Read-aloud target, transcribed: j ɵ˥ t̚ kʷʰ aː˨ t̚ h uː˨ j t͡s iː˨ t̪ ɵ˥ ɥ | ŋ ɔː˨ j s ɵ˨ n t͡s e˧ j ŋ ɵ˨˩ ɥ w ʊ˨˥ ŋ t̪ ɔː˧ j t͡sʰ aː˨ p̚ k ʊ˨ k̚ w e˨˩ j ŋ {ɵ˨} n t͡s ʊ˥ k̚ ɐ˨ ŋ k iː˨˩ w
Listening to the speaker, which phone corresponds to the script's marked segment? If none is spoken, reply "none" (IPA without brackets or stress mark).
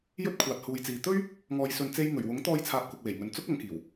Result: ɵ˨